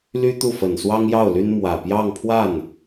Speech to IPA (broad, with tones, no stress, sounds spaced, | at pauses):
l y˥ t̪ u˥˩ f ə˨˩ n s w ɑ˥ ŋ j ɑ˥˩ ʊ̯ l y˥ n m w ä˨˩ p j ɑ˥˧ ŋ pʰ w a˥˩ n